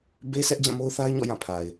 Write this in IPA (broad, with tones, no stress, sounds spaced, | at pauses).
b e˦ s ɛ˦ ʔ d͡ʑ ã˦˨ m o˦ ʊ̯ θ a˦ ɪ̯ ɲ ɔ̰˦˨ j ã˦˨ pʰ a˨ ɪ̯